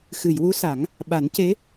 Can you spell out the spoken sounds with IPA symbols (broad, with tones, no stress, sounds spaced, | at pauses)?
x ɨ˨˩˨ j w u˧˥ s a˨˩˦ ŋ | ɓ a˨˩˦ n c e˧˥